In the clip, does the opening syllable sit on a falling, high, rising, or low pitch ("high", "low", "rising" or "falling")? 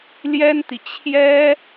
high